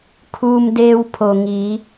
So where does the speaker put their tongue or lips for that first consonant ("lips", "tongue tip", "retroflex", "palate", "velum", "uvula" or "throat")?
velum